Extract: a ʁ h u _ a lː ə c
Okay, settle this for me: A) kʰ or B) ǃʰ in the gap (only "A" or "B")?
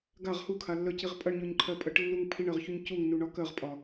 A